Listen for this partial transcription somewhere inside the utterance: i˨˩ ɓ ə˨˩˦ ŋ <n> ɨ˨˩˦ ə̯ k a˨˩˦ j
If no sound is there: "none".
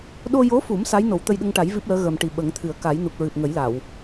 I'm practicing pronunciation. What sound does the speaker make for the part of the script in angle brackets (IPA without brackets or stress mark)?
t̪ʰ